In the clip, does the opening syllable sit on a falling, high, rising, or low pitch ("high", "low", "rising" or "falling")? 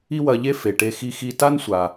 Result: high